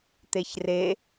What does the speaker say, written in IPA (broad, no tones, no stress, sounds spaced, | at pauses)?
t̪ e ç r e